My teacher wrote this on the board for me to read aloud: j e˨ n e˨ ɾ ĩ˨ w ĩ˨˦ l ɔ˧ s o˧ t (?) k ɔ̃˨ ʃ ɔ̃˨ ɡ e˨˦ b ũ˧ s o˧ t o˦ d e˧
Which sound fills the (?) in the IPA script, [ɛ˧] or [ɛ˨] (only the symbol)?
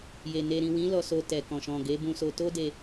ɛ˨